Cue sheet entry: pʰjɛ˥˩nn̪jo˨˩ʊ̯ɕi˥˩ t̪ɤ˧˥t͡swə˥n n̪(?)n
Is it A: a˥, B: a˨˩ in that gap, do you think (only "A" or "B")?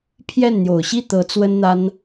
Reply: A